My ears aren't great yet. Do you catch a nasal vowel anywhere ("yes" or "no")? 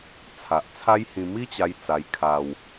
yes